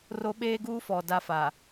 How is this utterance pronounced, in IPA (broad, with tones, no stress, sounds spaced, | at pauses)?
r o˦ ɓ eː˦ ɡ uː˦ f ɔ˨ d a˦ f a˨